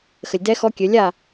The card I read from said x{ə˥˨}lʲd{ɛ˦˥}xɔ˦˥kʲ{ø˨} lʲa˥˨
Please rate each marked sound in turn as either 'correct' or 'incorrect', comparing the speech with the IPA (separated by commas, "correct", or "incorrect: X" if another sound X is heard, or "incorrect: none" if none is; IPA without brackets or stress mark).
incorrect: ə˨, correct, incorrect: ø˨˦